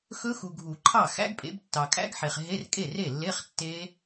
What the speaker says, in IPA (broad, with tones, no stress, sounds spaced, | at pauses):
x ɵ˦˥ x u˨ ɡʱ u˨˩˦ ǃʰ ɑ˥˩ x æ̰˦˥ ɡ pʼ ḛ˨˦ b tː ɑ˨ kʼ æ̰˦˥ ɡ ħ e˨ χ ɦ e˧˥˧ r kʼ e˥˩ r e˥˩ lː e˧˥˧ χ tː e˦˥